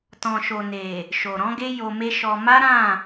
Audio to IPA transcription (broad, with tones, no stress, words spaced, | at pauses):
tɔ̃˨ʃo˨ne˨ | ʃo˨ɾɔ̃˨˦ɡe˦ jo˧me˦ʃɔ˧ ma˦ɾã˦˨